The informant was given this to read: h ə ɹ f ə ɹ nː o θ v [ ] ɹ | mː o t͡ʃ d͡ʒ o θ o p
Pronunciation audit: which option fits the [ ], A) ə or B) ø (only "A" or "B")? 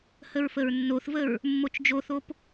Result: A